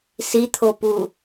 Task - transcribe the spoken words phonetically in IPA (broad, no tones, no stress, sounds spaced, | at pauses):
s i t̪ʰ o p u